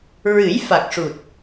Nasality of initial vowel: oral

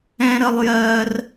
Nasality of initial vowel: nasal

